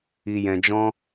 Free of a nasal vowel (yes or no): no